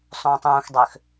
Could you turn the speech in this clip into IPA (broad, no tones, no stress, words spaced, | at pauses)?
sˤũːtˤũːxdˤøx